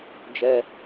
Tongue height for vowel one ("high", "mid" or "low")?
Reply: mid